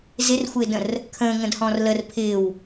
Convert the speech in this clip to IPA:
z ɪ r xʷ ɪː d ə̃ r | kʰ ə̃ː ŋ ə̃ d h ɔ̃ː r l ə r pʰ ɪː w

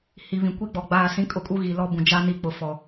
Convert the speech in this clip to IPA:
h i˨ β ĩ˨ kʷ i˦ ɡ͡b ɔ˨ ɡ͡b aː˦˨ s ĩ˦ kʼ ʊ˦ kʼ u˦ ɣ i˨ l ɔ˦ b ũ˨ d͡ʒ a˦ n i˦ k͡p ʊ˨ f ɔ˨

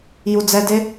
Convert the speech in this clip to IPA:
j u d͡z ɛ d e

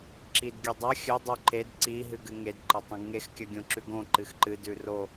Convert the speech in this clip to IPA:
ǁ i d ɡʲ ʉ dˤ ɐ xʲ ɵ dˤ ʉ ǃ e d ǀ i ɦ ɨ ɡ ɨ ŋ e d ǃ ɐ tˤ ũ ɡ ŋ e x kʲ ɐ ɡʲ õ ǁ ʉ ɡ õ ǃ ɨ x ǃ ɨ d ʉ r o

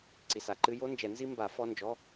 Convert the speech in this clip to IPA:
ǀ i˨ s a˨ ǃ ɨ˦˥ j o˦˥ n d͡ʒ ɛ˨˩˦ n z i˦˥ m b a˨˩˦ f ɔ˧˥˧ n d͡ʒ ɔ˧˥˧

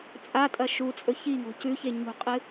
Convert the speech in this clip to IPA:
t͡sʼ a tʼ ɐ ʃ u t͡sʼ ɵ ç i ŋ o̤ c ʉ ç e ɲ ṳ qʼ ɨ

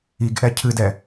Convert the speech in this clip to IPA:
i ɡ ʔ ɛ cʰ ɨ d ɛ

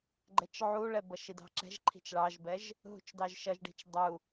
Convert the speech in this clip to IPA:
ɡ͡ǃ ɛ t͡ʃ ʕ u ɭ ɛ b ʌ ʃ i d ɑ̤ ǁ ɛ̤ ʒ ǃʰ i̤ t͡ʃ ɭ ɑ ʒ b ɛ ʒ | ɦ ṳ t͡ʃ d ɑ ʒ ʃ ʌ ʒ ɖ i̤ t͡ʃ dˤ u

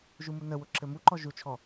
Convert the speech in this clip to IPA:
ʒ u m u n ə w ʊ ǁ ɘ m u ǃ ɔ ʒ u t͡ʃʰ ɔ

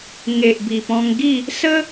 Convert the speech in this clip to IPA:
ŋ e˨ ʔ b i˨˩ p ɔ̃˧ ŋ ɡ i˥˧ | s ə˦

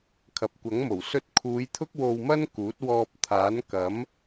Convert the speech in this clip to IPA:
kʰ ɐ˨ p̚ kʷ ɐ˨˥ ŋ m o˨˩ w s ɵ˧ t̚ kʰ uː˨˧ j t̪ʰ ʊ˥ k̚ w o˧ w m ɐ˥ n k uː˨˥ t̚ w ɔː˧ p̚ t̪ʰ aː˨˥ n k ɐ˨˥ m

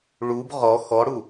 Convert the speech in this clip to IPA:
ɭ u b ʁ ɔ x ɔ ɽ u

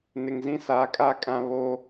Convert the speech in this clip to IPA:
n ɪ˨ ŋ z ĩ˦ s aː˨˦ kʼ aː˦ kʼ ã˦ β o˦

